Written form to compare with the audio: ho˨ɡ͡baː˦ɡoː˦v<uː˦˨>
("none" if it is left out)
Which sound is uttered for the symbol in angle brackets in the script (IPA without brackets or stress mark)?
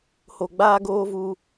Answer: uː˦